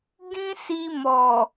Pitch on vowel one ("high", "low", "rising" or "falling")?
high